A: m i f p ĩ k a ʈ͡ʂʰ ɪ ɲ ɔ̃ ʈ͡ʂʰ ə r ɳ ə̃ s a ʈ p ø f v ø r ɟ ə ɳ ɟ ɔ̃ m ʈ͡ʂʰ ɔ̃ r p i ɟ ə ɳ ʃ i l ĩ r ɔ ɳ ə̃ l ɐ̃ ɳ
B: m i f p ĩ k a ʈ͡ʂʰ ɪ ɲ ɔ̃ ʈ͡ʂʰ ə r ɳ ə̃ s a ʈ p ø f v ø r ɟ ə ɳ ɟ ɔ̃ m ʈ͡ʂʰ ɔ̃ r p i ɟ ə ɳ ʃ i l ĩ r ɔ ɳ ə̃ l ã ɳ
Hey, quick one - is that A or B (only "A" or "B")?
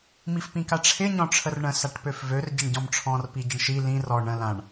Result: B